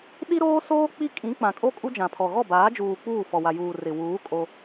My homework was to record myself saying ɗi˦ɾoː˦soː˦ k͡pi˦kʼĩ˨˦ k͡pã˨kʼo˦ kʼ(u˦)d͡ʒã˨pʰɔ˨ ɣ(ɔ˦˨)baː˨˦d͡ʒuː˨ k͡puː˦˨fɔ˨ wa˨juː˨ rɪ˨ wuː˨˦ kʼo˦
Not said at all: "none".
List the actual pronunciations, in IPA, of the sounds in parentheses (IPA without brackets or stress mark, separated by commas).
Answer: u˦, ɔ˦˨